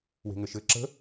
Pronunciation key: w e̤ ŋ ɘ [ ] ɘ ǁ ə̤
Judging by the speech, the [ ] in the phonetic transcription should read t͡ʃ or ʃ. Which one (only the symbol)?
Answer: ʃ